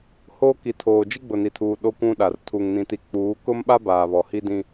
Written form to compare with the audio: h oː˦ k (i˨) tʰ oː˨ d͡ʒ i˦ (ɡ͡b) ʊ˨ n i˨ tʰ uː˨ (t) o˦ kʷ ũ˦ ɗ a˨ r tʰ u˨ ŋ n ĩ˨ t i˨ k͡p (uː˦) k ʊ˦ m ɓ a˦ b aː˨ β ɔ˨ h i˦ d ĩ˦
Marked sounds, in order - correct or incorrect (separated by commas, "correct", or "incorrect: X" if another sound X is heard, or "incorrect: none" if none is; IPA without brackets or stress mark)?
correct, correct, incorrect: ɗ, incorrect: uː˨˦